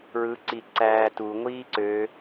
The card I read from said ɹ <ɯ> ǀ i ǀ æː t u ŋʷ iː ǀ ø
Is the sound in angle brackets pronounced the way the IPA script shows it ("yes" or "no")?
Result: yes